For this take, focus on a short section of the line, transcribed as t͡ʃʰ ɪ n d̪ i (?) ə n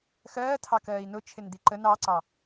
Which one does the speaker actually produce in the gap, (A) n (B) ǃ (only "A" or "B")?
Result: B